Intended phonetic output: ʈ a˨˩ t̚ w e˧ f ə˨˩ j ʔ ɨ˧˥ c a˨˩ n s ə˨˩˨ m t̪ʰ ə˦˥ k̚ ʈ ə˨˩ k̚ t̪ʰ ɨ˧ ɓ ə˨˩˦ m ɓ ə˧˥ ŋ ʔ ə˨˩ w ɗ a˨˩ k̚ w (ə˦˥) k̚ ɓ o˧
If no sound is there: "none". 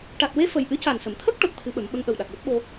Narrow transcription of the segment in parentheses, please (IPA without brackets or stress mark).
ə˦˥